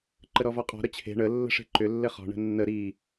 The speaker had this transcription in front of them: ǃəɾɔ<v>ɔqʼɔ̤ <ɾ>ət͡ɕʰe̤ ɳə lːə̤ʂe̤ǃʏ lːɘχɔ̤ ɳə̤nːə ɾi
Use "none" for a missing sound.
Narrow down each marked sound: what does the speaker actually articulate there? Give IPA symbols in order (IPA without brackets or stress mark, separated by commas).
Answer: v, ɾ